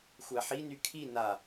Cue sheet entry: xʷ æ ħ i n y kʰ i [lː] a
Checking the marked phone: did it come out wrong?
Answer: yes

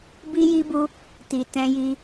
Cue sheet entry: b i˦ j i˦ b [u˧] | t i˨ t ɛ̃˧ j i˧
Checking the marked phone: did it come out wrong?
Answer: yes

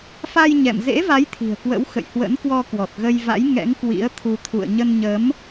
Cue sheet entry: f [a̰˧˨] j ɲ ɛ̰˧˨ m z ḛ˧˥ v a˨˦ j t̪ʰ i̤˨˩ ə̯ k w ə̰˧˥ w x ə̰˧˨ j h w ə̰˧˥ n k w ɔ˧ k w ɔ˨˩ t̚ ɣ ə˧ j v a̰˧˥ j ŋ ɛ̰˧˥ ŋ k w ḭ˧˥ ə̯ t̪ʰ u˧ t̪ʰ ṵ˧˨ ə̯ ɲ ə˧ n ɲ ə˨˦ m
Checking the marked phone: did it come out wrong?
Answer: yes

